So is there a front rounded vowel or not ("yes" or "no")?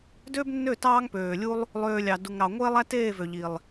yes